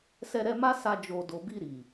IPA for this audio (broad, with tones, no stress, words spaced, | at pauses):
sɛ˧ɾɛ˧ma˦ sa˧ d͡ʒo˨do˨bi˧ ɾi˨